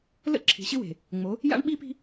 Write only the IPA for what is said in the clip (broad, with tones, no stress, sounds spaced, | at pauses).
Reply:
l ə̰˦ ǁʰ i̤˨ ɕ ɪ˦ w e̤˨ | ŋ͡m o˨˦ | j a̰˦ ɳ ɓ i˦ p i̤˦